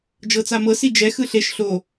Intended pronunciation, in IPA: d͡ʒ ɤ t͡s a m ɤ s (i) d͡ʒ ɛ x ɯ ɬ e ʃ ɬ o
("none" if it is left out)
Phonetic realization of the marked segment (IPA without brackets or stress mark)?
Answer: i